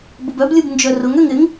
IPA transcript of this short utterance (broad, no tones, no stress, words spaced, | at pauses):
bʊbœblʲub nd͡ʒœrʊŋøŋ ɪŋ